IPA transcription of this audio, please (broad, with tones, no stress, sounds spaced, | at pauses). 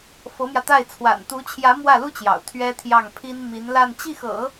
f ɤ˧˥ m j ä˧ t̪ a˥˩ ɪ̯ t͡sʰ w a̰˨˩ n t̪ u˧˥ t͡ɕʰ j ä˧˥ m w ä˥˩ l u˥ t͡ɕ j ɑ̰˨˩ ʊ̯ t̪ʰ ɥ ɛ˥ t̪ʰ j ɑ˥˩ ŋ pʰ i˥ n m i˧˥ n l a˥˧ n t͡ɕ i˥˩ x ɤ̰˨˩˦